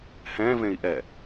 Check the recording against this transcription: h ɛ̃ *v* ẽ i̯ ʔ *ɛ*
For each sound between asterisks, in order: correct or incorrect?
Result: correct, correct

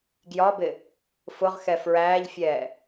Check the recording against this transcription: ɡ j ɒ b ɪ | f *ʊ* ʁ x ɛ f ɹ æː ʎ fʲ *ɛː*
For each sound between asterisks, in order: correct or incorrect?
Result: correct, correct

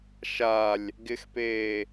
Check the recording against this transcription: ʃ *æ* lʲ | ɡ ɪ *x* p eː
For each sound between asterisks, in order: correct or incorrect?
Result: incorrect, correct

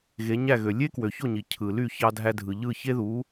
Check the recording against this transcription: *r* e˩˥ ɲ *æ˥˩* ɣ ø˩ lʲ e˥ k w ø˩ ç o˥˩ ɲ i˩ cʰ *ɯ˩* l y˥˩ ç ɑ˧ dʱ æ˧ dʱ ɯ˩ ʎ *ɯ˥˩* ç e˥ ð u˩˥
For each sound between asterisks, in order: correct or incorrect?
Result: incorrect, correct, correct, correct

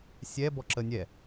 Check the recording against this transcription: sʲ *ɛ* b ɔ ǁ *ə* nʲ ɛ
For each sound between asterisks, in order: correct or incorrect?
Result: correct, correct

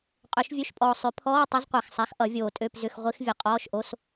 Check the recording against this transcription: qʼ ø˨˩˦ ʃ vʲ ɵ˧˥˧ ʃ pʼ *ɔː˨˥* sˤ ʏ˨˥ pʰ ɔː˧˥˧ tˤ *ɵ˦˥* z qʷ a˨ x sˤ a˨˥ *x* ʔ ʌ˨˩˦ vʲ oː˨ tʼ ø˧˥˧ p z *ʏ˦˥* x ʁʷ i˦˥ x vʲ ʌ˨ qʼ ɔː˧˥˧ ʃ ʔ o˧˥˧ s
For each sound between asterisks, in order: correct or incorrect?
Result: incorrect, correct, correct, incorrect

